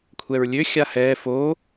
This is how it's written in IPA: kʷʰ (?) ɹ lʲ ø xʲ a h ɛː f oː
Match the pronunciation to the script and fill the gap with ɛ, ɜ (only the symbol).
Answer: ɛ